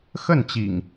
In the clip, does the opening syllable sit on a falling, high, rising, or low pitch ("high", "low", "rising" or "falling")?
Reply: falling